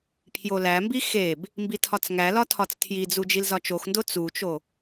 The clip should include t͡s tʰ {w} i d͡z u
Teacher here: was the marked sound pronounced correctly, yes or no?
no